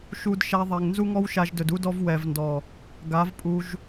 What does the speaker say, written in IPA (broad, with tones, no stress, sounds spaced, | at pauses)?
ʃ u˧ d ʃ a˧ ðˤ ɛ˨ ŋ n z u˦ ŋ ɔ˦ w ʃ a˧ ʒ d ɵ˨ d u˦ d ɔ˦ v w ɛ˨ v n d ɔ˨ | ɡ a˨˦ v pʼ u˧ ʒ